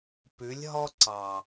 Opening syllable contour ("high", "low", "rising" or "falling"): rising